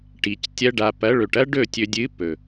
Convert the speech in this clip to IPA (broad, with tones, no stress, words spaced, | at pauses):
ʈi˨c tʲɐ˧ɖa˨ pɐ˨˦ɭɵ˨ʈɐ˦ ɖɵ˦˨ tʲɵ˨dʲɨ˨˦ pɵ˨